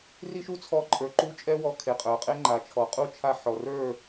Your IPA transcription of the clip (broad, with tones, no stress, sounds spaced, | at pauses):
r i˦ ʃ u˦ t͡sʰ ɔ˧ ǃʼ ə˞˨ ǃ u˧ t͡ʃʼ ɛ˧ w ɔ˨˦ kʰ e˨ qʼ ə˞˨ qʼ e˦ ŋ͡ǃ a˨ t͡ʃʰ ɔ˨ qʼ u˦ t͡ʃʰ a˧ ħ ɔ˨ r ə˞˦˨